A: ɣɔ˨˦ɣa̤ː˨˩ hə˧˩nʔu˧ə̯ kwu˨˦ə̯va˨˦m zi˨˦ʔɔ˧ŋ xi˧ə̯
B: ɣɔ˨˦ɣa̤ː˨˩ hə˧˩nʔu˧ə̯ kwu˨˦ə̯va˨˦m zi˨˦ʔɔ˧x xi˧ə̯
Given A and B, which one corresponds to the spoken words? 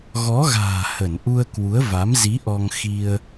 A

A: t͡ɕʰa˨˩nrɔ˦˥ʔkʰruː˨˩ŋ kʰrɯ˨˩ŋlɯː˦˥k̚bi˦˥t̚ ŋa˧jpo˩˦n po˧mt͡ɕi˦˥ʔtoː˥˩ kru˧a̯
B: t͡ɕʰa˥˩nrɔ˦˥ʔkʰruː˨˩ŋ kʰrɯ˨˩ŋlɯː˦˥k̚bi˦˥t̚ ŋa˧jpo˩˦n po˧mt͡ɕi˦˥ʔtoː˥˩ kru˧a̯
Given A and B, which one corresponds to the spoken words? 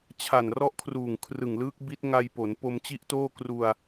A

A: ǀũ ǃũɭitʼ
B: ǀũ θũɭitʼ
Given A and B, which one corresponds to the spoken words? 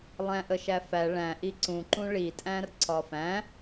A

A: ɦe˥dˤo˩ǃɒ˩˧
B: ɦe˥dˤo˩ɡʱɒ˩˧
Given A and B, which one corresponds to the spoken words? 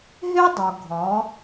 B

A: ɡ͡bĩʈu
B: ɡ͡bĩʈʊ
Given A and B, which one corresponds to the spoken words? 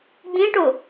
B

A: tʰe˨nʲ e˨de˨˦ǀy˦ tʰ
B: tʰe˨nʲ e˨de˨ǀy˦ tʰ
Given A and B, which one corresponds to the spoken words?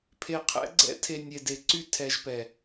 B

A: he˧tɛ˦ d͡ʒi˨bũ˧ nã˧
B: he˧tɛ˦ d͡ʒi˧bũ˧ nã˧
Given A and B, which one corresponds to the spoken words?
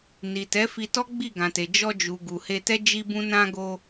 B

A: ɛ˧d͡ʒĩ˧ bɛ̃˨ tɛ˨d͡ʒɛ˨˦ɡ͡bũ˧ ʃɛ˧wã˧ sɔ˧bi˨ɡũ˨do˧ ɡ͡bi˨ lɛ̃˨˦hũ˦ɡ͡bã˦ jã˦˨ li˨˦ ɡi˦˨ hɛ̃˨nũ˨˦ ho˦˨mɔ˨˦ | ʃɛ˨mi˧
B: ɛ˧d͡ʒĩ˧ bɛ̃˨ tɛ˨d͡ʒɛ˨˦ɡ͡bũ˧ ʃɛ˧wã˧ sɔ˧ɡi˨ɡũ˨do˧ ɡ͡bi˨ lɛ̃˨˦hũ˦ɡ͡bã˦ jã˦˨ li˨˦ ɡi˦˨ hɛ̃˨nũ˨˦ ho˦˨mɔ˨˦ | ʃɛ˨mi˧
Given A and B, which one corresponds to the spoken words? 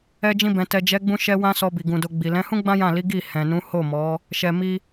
A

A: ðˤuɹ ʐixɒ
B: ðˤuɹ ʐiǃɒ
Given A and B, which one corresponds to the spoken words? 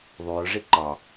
B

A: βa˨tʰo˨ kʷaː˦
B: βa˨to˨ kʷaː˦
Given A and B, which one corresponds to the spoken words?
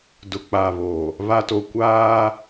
B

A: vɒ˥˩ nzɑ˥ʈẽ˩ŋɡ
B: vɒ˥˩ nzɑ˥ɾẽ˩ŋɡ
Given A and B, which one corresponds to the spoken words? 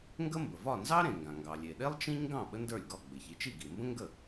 B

